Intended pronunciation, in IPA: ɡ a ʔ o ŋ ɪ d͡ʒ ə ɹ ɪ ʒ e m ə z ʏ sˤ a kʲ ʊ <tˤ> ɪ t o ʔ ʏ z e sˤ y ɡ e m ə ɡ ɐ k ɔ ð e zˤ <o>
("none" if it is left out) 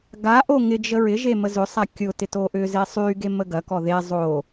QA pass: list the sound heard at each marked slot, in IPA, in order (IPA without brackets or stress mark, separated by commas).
t, o